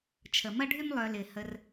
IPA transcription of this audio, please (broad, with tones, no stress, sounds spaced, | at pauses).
t͡ʃʰ ə˨ m ɐ˦ ɖʱ y˦ m lˠ œ˧ l ɪ˨ h ə˧ r